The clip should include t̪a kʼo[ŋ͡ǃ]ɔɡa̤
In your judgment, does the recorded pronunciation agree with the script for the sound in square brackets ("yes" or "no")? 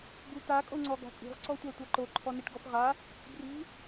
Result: no